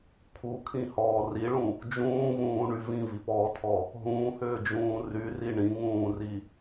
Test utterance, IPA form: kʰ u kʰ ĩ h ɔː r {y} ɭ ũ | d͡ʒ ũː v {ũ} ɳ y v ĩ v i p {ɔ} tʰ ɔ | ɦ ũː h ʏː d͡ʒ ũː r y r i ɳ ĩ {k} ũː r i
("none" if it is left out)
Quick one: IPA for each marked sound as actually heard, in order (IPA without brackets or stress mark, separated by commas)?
i, ũː, ɔː, ŋ